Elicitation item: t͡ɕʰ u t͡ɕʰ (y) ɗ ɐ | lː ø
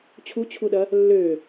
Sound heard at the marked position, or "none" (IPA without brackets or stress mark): u